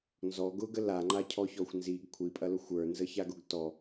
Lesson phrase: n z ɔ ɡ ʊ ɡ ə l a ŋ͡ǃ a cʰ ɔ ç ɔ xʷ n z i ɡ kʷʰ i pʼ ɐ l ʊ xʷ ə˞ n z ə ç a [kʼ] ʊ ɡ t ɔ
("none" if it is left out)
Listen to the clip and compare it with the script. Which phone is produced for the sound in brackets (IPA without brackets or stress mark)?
ɡ